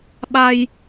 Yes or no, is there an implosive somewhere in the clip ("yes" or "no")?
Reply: yes